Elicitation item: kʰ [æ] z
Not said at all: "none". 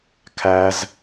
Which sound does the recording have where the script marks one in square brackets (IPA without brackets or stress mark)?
æ